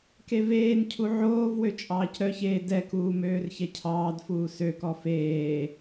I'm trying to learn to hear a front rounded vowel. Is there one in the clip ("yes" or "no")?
yes